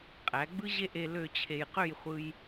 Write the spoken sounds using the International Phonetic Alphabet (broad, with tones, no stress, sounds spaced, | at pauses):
qʼ æ˩˧ ɡ͡b ɯ˥ ʑ e˥˧ ʔ e˧ l ø˥˧ t͡ɕʰ e˧ j q ø˥˧ j χʷ ɯ˧ j